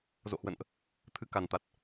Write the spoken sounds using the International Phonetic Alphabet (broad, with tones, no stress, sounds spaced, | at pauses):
z o̰˧˨ h w ə̰˧˨ n ʔ | t̪ʰ ɨ˨˦ k a˨˩ n t̪ a˨˩ t̚